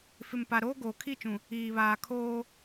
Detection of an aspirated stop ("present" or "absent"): present